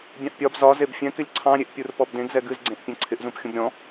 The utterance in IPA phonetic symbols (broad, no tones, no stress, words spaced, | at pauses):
bʲɑ̃ʔpʲɒb zɒ zebfʲɛ̃kɪlʲ ǀʰɑ̃ɾʲeʔpʲur pɔbdẽɡzɛ ɡɨzɡ͡ǀẽʔ pʲɛ̃ǀʰɪʔzũp xʲũbɾʲɔ̃